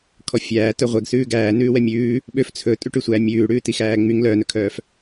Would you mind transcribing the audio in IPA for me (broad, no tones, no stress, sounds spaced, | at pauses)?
kʰ ɔ fʲ æː t œ ʁʷ ɛ ɡ s ʉː ɡ æː n ʉː w ɛ mʲ ʉː | ɓ ø f t͡sʰ ɵ tʼ ʉ ʈ ʉ sʷ æ mʲ ʉː ɽ ʉː t i x æː ŋ͡m y ŋ l œː n ɵ kʰ œː f